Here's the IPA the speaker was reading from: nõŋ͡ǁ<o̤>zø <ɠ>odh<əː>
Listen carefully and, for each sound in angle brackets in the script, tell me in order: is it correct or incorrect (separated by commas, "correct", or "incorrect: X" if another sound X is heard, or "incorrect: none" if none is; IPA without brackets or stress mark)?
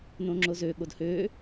incorrect: o, correct, incorrect: øː